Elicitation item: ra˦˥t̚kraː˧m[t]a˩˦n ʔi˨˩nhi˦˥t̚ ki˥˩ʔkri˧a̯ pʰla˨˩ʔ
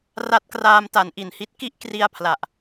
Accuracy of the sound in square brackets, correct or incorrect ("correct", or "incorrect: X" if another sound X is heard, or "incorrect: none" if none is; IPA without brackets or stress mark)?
correct